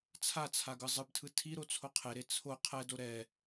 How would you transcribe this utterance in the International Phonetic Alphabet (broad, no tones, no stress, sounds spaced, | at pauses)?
t͡sʰ a t͡sʰ a ɡ ɯ zˤ ɯ b tʰ ɯ tʰ i ɾ o t͡sʰ o qʰ e ɾ e t͡sʰ o qʰ ɛ d o ɾ ɛ